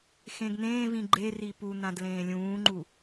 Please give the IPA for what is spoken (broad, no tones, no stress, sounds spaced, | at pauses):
x ẽ ɡ n̪ ẽː v ĩ ɡ͡ǃ e r i p u n̪ ã d l ẽː lʲ ũː ŋ͡ǃ u